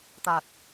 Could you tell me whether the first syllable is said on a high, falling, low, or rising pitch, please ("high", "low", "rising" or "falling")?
low